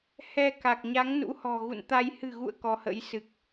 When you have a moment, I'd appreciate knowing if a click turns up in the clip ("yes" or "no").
no